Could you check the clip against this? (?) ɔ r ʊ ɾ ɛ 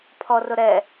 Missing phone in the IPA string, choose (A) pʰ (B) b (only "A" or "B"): A